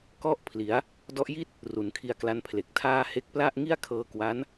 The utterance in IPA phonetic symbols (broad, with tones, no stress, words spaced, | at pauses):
kɔ˥˩ʔpʰli˩˦a̯ | dɔ˦˥ʔji˥˩t̚ | ru˩˦nkʰi˧a̯kla˦˥npʰle˨˩k̚ tʰaː˧ he˦˥k̚pla˥˩ʔ ŋi˥˩a̯ kʰɤː˧kwa˦˥n